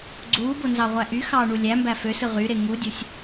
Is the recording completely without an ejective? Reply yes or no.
yes